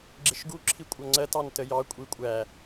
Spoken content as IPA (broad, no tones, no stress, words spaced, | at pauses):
ɡ͡ǁɪʃɡu ǁʰikʷʼʌŋ͡ǀɜt ɑntəjɑ kʷʼikʷʼæ